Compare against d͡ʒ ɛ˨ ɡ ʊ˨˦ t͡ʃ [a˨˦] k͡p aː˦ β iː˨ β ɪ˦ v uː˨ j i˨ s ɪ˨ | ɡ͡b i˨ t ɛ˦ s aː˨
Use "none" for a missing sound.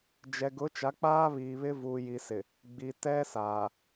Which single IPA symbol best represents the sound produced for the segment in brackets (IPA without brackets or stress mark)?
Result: a˨˦